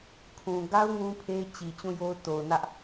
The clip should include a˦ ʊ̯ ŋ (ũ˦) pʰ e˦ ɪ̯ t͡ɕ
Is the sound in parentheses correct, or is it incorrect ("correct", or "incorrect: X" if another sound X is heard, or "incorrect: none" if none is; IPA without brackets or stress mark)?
correct